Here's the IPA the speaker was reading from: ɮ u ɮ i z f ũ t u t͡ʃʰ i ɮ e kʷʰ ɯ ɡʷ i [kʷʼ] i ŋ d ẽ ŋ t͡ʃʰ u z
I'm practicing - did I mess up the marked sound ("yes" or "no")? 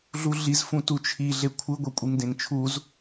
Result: no